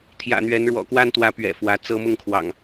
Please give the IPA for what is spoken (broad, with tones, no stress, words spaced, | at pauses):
t̪ʰjä̰˨˩n̪ɥɛ˨˦n ɻwɔ̰˨˩kwa˦nt̪wä˨˦ pɥɛ̰˨˩fwä˨˦ t͡sɤ˦ mʊ˥˨ŋkʰwɑ̰˨˩ŋ